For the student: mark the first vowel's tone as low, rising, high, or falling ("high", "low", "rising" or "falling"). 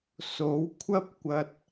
rising